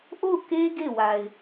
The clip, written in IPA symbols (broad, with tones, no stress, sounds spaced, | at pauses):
ʔ o˦˨ ʊ̯ k e˦ ɡ e˦˨ w a˨ ɪ̯